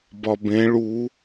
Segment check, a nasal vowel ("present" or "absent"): present